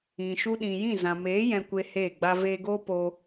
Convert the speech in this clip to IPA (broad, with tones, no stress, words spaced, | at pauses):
ĩ˨ʃu˧ɗĩ˨jĩ˦˨ zã˨meː˨˦ jɛ̃˧kʷe˧ heː˦˨ɡ͡ba˦ veː˧ɡoː˦ po˦